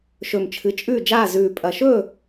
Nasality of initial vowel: oral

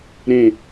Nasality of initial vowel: nasal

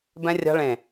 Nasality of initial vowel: nasal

